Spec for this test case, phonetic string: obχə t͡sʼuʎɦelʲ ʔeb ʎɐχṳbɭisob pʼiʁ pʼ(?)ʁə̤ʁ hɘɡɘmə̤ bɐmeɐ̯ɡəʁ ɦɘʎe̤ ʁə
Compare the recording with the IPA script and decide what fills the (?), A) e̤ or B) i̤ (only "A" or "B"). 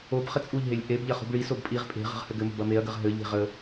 A